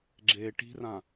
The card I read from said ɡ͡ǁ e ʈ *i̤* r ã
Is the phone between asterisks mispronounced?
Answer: no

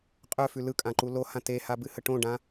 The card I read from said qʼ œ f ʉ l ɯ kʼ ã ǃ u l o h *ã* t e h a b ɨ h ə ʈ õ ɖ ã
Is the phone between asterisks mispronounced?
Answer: no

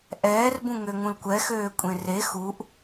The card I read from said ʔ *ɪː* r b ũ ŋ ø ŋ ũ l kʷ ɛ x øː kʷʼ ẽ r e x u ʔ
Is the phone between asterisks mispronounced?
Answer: yes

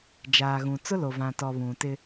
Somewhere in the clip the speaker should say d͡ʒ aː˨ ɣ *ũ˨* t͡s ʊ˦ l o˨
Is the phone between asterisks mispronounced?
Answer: no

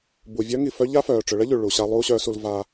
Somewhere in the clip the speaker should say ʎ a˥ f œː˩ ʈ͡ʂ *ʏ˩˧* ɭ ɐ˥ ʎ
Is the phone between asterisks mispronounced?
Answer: no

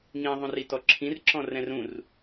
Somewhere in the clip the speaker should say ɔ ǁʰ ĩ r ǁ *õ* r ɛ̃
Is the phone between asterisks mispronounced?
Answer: yes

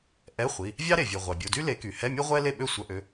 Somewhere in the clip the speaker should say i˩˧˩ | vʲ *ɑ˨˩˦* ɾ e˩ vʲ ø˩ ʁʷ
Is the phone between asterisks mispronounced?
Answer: yes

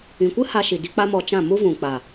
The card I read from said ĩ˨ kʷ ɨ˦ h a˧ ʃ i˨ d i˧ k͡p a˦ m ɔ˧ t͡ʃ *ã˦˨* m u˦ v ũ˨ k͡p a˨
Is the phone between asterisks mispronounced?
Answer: no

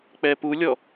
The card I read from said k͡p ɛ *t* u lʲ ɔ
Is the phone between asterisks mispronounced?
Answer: yes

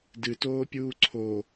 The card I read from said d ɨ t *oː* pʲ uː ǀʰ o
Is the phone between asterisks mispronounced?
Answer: no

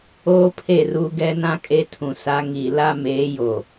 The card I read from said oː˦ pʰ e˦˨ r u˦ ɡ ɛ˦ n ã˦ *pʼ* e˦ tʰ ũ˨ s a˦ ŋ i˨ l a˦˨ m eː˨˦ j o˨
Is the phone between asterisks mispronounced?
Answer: yes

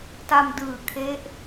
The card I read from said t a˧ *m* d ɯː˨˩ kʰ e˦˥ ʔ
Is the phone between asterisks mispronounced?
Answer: no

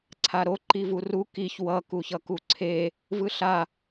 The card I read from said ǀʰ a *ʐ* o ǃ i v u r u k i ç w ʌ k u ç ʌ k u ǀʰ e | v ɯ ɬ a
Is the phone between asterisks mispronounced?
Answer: yes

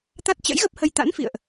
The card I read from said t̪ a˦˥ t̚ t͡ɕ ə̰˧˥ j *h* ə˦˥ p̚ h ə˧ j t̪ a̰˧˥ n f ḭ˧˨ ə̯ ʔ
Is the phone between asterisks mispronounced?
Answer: yes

